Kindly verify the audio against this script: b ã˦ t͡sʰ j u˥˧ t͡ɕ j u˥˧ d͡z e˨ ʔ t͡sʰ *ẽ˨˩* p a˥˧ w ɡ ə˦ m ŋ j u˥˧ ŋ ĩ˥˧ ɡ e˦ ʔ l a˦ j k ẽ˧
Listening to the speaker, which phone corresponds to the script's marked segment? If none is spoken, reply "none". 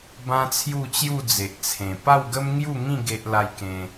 ẽ˨˩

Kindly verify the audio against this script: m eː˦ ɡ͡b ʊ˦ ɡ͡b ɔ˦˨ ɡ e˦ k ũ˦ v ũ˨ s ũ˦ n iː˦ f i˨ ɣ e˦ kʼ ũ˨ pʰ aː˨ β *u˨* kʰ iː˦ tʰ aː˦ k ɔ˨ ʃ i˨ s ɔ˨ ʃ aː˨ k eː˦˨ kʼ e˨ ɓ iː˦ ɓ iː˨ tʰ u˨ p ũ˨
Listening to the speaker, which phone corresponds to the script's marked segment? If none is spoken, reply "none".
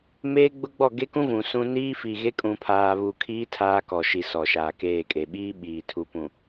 u˨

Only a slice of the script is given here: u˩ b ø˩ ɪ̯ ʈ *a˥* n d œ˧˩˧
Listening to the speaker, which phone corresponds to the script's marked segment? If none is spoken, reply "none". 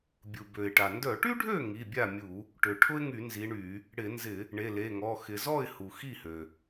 a˩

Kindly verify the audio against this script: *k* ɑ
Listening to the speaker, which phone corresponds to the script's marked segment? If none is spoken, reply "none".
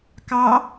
k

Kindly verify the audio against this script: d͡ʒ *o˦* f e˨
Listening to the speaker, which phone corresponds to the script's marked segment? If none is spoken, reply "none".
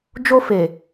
o˦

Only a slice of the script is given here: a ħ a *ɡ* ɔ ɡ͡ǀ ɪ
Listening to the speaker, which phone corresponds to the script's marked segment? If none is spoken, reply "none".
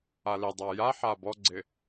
b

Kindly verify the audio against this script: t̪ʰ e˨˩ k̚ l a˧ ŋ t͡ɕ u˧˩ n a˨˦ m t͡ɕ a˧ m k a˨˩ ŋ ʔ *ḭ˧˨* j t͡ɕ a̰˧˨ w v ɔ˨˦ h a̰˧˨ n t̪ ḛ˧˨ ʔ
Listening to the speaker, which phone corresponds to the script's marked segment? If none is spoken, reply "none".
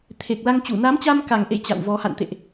ḛ˧˨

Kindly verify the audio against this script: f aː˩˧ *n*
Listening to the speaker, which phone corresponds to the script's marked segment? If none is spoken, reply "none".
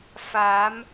m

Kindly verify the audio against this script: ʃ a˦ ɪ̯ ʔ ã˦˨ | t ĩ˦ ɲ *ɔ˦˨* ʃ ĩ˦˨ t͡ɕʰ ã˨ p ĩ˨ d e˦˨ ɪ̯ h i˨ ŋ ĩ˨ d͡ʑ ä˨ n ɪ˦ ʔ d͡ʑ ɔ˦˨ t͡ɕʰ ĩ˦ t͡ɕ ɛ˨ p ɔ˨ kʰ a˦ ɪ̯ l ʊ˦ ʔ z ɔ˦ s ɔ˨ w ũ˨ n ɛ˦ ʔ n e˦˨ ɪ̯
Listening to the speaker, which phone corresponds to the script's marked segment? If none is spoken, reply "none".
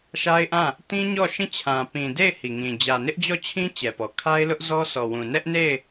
ɔ˦˨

